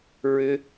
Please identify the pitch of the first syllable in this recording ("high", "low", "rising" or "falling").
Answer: high